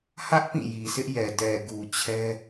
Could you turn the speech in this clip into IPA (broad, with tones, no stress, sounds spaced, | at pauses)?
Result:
h ä˦ ʔ p ĩ˦˨ j i˨ sʰ ɪ˦ ʔ j ɛ˨ d ɛ˨ ɡ u˨ t͡ɕʰ ɛ˦